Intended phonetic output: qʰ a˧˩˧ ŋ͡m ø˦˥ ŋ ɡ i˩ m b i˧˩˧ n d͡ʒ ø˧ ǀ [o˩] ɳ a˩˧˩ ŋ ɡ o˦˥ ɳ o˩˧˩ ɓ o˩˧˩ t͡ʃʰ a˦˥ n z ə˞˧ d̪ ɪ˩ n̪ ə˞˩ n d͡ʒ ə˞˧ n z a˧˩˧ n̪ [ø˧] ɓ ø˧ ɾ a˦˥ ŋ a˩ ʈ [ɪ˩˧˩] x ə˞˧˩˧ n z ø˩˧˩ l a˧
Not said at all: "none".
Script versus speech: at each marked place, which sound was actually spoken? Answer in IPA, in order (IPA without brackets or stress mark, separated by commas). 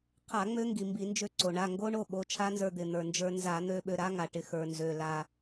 o˩, ø˧, ɪ˩˧˩